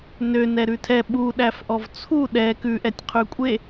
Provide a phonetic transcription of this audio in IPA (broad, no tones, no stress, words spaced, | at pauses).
nø nɛɾʉtʰɛ ɓu ɗæfʔɔvt͡sʰu ɗɛ kʉʔɛtʲ qʰʉkʷʼe